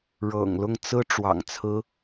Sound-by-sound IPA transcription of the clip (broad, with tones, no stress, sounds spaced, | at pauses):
ɻ ɤ̰˨˩ ŋ l ʊ˥˩ ŋ t͡s ɹ̩˥ ʈ͡ʂ w ɑ̰˨˩ ŋ t͡sʰ ɹ̩˥